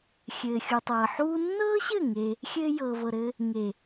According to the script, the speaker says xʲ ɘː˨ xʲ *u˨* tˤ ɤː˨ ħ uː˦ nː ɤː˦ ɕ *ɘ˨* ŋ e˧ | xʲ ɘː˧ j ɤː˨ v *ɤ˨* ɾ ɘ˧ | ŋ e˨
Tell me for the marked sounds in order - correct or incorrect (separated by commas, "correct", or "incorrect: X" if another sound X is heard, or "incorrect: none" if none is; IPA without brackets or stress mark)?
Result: correct, incorrect: ɘ˦˨, correct